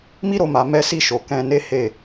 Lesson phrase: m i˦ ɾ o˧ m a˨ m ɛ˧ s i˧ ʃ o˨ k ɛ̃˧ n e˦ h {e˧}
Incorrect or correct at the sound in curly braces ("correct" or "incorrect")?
incorrect